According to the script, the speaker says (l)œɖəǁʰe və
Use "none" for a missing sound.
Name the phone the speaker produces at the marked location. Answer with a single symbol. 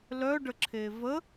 l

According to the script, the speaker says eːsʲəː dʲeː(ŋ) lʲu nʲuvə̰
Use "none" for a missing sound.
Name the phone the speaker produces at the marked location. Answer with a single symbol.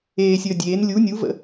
n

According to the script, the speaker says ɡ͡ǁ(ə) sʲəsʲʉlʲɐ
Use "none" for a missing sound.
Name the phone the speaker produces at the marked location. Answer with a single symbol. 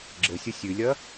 ə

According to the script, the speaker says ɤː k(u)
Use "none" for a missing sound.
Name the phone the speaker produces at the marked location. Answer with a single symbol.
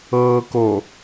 o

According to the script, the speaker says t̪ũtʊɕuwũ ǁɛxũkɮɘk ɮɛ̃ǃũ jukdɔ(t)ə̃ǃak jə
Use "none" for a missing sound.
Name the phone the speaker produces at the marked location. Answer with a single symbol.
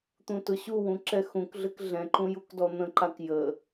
n̪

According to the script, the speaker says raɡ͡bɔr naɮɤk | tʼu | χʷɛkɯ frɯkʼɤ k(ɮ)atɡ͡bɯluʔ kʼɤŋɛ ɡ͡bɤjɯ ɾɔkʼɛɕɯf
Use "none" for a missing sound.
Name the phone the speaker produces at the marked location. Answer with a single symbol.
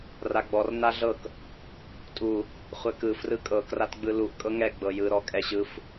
r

